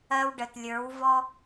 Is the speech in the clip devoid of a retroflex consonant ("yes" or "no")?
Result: no